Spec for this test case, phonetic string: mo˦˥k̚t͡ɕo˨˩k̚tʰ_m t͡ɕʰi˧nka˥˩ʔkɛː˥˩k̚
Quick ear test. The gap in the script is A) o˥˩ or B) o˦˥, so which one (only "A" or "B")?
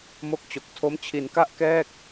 B